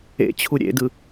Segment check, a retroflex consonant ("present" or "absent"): absent